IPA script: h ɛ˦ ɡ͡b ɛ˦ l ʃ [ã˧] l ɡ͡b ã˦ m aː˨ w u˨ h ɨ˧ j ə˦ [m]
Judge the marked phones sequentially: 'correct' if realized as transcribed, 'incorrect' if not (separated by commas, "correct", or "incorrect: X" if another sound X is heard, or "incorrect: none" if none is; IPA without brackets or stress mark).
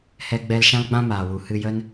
incorrect: ã˦, incorrect: n